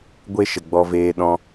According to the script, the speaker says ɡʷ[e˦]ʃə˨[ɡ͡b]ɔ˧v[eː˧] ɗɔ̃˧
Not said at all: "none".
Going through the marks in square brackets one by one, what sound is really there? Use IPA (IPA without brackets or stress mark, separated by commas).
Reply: e˦, ɡ͡b, eː˧